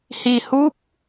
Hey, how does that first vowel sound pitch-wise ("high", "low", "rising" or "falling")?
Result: low